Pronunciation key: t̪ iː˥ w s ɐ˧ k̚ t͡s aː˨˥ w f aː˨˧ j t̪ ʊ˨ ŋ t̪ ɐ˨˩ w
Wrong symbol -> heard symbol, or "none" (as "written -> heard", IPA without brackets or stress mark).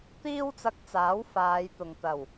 s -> t͡s